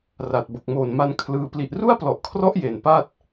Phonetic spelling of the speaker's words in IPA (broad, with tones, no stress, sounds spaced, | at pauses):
r a˨˩ t̚ b o˨˩ k̚ m oː˨˩ n m a˧ n kʰ l ɯː˧ p l i˨˩ ʔ r u˥˩ a̯ p l ɔ˨˩ ʔ kʰ r ɔ˦˥ ʔ j e˨˩ n p a˥˩ t̚